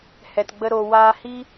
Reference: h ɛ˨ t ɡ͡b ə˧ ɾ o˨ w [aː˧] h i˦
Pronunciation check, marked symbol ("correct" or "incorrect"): correct